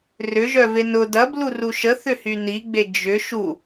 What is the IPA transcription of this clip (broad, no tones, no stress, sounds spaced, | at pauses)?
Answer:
r ʏ ʒ œ v e n ʊ d ɐ b l u r u ʃ ə θ ʏ h y n i ɡ͡b e d͡ʒ ʏ ʃ u